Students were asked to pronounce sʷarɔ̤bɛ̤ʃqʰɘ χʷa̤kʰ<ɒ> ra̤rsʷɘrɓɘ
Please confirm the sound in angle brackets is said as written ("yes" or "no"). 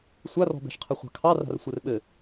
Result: no